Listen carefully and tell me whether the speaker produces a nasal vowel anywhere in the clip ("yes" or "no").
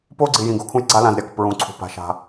yes